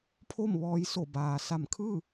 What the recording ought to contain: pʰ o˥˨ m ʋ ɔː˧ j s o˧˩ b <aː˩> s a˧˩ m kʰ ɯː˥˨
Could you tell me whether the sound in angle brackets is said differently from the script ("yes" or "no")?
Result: no